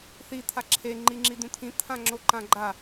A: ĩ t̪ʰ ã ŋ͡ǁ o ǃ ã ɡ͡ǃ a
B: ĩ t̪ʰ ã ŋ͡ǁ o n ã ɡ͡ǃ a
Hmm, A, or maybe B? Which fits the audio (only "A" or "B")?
A